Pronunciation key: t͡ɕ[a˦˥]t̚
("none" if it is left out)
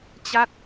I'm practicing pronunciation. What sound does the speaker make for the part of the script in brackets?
a˦˥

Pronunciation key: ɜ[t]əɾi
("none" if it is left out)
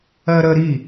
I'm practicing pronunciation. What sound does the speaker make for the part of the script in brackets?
ɾ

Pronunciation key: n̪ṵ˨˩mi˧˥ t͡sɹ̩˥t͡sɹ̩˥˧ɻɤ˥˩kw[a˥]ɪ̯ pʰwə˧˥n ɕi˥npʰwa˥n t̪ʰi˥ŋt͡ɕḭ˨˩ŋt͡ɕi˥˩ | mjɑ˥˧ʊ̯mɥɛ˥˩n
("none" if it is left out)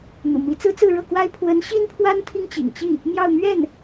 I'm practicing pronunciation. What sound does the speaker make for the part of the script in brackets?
a˥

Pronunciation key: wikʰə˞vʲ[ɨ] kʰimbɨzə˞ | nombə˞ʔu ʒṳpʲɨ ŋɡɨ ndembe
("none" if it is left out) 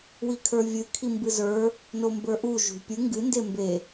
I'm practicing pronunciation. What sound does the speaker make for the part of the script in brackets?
ɨ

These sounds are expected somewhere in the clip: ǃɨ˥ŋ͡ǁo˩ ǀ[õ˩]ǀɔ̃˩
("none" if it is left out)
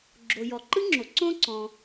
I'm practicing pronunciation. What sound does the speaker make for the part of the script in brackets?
õ˥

